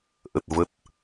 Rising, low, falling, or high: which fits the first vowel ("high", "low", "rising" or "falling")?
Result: low